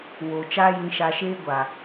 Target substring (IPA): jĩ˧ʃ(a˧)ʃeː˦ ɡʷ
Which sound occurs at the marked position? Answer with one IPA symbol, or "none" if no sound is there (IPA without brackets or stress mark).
a˧